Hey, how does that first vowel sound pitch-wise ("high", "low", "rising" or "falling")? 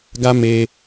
high